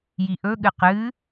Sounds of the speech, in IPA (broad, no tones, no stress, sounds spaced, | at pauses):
j i ʔ ɵ ɠ ɨ q ɨ